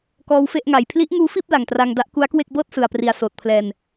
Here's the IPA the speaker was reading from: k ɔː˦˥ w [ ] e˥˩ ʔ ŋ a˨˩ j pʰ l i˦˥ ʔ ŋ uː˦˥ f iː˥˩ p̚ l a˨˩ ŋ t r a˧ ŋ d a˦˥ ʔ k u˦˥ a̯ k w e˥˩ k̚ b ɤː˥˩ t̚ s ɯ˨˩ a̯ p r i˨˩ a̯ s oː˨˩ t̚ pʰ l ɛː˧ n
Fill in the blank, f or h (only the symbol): f